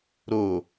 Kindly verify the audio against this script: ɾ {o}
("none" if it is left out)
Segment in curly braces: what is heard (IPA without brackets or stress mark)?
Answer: o